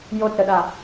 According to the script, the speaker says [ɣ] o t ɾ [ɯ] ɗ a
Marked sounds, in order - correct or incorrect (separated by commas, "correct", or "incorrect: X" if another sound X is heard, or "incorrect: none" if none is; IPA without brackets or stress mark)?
incorrect: j, incorrect: ə